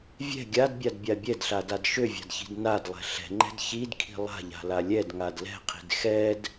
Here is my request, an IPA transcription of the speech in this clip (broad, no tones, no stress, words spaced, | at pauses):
vʲɛ̤ ɡʲadbʲadbʲa bʲɛdɬadad ʃøvʲa̤dçi̤d nadlˠɛ̤ ɬɛ̤ŋ͡ǃɛ̤d çidkʰi̤ lˠa̤ʎa̤la lʲɛdŋad lɛ̤qʰi̤d xɛd